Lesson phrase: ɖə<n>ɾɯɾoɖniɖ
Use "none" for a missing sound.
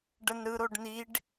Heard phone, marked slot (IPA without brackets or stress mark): n